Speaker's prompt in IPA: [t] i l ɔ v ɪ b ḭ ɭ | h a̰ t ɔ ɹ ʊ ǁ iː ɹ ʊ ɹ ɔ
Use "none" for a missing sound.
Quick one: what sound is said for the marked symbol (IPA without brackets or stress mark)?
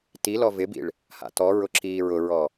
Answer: t